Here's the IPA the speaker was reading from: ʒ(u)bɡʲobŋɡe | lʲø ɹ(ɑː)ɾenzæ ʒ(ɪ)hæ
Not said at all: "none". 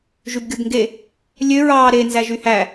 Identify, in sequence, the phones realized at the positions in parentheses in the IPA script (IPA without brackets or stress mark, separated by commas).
y, ɑː, y